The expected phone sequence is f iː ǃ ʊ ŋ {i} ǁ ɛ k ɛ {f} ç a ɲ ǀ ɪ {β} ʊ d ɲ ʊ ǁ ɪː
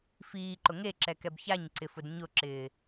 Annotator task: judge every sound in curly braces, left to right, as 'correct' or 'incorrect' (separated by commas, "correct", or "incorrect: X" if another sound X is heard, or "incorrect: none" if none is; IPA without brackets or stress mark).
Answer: incorrect: e, incorrect: b, incorrect: f